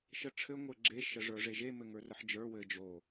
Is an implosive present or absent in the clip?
absent